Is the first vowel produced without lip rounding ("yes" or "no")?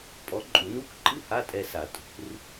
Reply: no